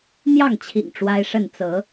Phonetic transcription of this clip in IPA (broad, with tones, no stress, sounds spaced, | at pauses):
n̪ j ɑ˥˨ ŋ t͡ɕʰ ḭ˨˩ ŋ ʈ͡ʂ w a˦ ɪ̯ ʂ ə˥˨ n t͡s ɤ˨˦